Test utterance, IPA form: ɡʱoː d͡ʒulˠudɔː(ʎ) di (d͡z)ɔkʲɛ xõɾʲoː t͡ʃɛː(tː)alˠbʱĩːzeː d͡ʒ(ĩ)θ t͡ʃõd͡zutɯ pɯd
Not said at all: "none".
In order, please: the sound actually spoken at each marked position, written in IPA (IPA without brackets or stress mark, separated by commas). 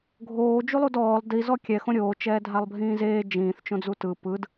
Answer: lˠ, z, dʱ, ĩː